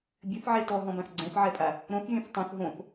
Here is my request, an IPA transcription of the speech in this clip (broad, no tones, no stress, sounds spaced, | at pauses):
bʲ ɘ θ ʕ e t ɔ ɦ ɔ̃ b ã θ ɡ͡ǀ ɛ̃ θ ʕ ɛ pʼ a | ɾ õ θ vʲ ɔ̃ θ tˤ õ θ ɦ õ θ